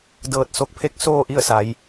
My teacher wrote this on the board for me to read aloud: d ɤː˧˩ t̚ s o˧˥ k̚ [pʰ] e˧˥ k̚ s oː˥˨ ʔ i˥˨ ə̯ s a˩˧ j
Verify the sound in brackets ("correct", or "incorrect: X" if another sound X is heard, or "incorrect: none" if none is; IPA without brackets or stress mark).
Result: correct